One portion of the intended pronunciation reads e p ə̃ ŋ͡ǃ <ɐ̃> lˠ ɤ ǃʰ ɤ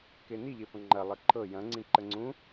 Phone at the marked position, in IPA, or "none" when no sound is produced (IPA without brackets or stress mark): ɐ